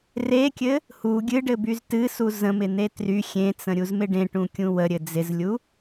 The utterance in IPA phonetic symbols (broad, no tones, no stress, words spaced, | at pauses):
rekʲɘ | hu ɡʲɨɖɘbyz tɨsu zə̃mɪn̪e try xʲẽt͡sə̃ɾʲuzmɪ ɖẽʈũkʲũ wəɾʲɘ d͡zɪzlʲu